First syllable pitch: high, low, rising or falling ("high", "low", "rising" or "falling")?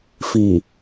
low